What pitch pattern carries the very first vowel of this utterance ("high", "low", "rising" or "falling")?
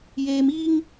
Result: high